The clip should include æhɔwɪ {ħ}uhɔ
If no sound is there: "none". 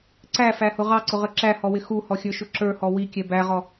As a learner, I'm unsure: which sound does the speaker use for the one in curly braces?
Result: x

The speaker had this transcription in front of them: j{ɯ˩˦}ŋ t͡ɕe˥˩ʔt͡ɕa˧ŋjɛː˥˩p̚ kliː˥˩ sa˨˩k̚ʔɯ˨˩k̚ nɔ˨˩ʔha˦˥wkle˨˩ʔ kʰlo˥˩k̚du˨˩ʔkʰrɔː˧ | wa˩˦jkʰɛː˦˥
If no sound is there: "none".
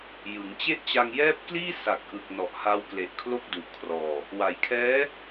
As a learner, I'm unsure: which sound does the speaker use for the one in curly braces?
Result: ɯ˩˦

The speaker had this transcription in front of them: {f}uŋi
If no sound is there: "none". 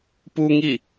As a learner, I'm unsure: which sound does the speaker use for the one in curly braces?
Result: p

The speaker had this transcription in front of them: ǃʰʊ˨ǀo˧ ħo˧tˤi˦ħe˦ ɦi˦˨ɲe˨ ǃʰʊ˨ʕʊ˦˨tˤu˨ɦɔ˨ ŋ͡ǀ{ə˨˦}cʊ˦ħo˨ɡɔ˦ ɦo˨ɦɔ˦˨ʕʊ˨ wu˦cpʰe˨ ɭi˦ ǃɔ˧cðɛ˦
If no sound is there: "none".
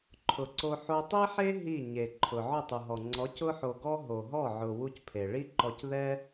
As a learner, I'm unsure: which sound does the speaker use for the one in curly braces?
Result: ɔ˨˦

